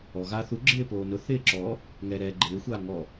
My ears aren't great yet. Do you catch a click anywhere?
yes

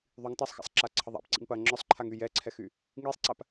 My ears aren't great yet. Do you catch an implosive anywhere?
no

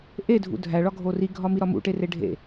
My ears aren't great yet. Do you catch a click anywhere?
no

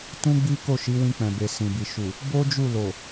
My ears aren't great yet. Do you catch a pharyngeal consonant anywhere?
no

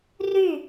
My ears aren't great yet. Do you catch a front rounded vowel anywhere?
yes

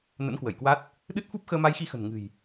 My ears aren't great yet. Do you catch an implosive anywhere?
yes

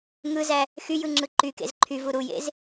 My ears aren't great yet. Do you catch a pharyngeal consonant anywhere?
no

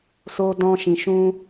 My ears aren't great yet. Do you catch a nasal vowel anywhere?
yes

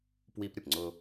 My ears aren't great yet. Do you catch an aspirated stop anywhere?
no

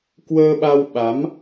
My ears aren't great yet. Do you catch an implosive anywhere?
yes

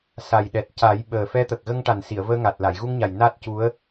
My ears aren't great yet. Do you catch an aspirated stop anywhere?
no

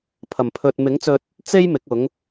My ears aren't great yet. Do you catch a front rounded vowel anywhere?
no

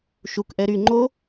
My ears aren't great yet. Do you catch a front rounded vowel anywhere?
yes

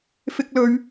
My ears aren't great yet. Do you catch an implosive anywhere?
no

